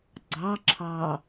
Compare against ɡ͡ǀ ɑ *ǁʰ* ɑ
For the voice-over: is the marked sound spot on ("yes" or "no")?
yes